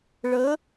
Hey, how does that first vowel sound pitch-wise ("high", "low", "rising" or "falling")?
rising